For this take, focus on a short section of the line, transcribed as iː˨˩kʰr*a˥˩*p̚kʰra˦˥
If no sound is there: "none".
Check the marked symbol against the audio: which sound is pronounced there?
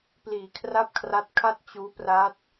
a˥˩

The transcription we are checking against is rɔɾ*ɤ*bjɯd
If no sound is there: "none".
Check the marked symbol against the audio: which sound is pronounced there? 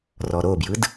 o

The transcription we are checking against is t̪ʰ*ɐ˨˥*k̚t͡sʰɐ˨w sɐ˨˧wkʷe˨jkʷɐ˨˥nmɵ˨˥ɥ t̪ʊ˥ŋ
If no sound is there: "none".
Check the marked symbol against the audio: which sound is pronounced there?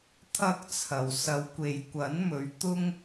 ɐ˥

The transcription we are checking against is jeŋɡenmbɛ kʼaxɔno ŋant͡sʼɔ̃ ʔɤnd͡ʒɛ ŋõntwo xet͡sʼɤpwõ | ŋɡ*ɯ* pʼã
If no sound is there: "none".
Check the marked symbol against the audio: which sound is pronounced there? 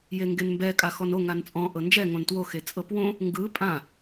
ɯ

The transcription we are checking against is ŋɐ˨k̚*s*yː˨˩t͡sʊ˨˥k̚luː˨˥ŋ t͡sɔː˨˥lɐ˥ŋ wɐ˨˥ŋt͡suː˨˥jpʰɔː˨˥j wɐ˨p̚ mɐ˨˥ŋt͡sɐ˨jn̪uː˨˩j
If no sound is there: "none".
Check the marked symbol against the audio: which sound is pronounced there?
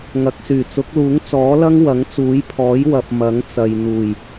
s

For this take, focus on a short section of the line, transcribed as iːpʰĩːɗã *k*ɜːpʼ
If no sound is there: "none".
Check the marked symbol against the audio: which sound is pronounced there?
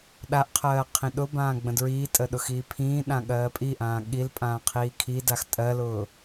ɠ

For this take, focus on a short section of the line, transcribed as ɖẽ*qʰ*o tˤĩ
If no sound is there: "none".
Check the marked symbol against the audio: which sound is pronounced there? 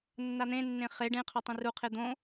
qʰ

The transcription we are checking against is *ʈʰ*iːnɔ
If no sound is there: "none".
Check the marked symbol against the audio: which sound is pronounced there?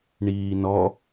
ɳ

